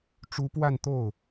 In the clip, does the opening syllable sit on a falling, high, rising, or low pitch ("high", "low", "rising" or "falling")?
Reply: rising